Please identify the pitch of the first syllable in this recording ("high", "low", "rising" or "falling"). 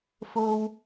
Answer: high